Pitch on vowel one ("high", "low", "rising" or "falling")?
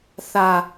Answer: high